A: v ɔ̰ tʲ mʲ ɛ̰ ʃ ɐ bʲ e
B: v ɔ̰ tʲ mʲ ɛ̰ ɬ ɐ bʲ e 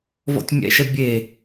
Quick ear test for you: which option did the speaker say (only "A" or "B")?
A